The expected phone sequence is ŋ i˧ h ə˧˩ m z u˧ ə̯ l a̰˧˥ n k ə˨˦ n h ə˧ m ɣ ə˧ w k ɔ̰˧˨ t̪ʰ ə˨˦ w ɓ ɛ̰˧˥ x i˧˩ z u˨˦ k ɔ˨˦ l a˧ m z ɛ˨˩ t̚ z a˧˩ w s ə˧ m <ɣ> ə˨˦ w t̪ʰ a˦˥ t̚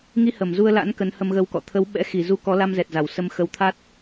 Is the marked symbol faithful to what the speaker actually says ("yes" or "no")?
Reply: no